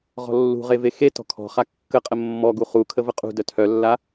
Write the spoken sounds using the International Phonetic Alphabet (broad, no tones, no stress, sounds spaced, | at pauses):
ʁ ɔ̤ lː ṳ ʁ e v e x e t ɔ̤ kʰ ɔ̤ χ a kː ə qʼ ə mː ɔ ɡ u χ u kʰ ə v ə qʼ ṳ d œ tʰ œ lː a